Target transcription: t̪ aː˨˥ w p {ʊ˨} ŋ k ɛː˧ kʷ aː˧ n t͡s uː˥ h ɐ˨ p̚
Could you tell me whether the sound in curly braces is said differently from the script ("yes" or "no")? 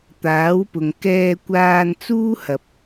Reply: no